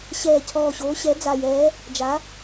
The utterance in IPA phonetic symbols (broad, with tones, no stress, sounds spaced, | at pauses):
ɕ ɛː˨˩ cʰ ɔː˨˩ ɕ oː˩˧ ɕ ɛ˩˧ d͡z a˨˩ j ɛː˩˧ | d͡ʒ a˩˧